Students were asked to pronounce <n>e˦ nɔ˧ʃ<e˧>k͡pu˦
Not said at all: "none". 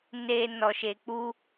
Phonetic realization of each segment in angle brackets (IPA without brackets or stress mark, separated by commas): n, e˧